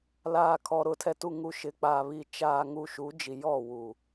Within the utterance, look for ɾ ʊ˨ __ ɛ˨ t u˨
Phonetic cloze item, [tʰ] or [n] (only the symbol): tʰ